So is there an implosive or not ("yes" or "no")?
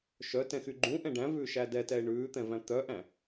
no